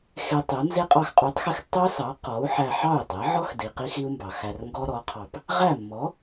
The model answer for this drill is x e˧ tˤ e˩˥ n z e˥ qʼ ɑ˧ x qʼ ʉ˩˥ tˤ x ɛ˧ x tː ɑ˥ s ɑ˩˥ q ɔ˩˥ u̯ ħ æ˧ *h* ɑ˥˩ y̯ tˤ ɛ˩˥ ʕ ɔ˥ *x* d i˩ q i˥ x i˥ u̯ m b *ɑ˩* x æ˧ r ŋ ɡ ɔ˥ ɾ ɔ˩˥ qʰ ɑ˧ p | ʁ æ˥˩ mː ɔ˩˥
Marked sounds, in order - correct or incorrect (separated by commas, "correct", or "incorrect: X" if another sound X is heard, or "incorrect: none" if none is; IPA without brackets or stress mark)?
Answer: incorrect: ħ, correct, correct